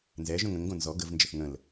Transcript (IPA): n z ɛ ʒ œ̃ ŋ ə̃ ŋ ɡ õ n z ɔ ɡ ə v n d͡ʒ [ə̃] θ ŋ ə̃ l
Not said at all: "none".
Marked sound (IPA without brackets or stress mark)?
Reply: ə